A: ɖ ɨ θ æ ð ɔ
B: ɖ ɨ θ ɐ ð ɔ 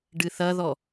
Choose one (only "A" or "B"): B